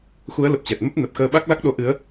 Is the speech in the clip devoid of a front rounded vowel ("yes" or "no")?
yes